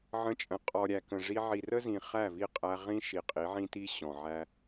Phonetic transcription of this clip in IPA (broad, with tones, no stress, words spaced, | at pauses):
ʕə̃˧t͡ʃʼə̃˨ qʼɔ˨ ɾʲæ˨kə̃˨ʐi˧ ʕi˨rə˦ zĩ˨ χæ˦˨vi˦˨qʼæ˧ ʁĩ˦ ʃi˨ qʼi˨˦ʕĩ˦ti˦ ɕɔ̃˨ʕæ˦